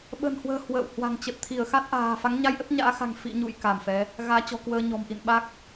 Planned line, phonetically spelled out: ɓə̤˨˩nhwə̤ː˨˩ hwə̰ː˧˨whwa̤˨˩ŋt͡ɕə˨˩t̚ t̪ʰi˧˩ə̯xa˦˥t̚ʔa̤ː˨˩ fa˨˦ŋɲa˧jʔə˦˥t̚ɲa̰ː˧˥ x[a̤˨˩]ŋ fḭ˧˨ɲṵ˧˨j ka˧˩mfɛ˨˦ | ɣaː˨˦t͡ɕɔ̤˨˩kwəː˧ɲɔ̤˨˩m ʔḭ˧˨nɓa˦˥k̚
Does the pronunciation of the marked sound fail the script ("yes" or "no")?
no